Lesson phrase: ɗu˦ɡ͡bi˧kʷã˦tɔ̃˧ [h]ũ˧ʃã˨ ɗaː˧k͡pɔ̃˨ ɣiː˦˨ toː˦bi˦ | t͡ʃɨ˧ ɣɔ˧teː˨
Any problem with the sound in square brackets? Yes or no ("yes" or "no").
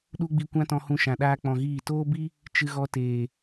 no